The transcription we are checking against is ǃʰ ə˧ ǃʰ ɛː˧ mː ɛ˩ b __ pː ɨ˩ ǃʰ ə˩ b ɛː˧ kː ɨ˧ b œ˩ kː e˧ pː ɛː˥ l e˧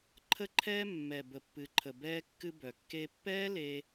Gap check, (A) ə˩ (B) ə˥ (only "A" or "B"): A